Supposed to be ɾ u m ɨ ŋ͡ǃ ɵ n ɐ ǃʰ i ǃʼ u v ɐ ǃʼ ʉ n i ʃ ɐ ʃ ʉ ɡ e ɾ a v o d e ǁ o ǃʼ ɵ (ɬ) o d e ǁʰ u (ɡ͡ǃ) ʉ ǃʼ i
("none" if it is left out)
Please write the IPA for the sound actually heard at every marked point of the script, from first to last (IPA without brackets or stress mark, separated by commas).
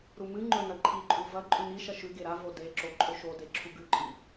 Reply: ʃ, ɡ